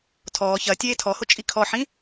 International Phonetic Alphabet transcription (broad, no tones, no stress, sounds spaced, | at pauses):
tʰ ɔː ç ɐ tʲ eː tʰ ɔ h o t͡ʃʼ i kʰ ɔ ħ ĩ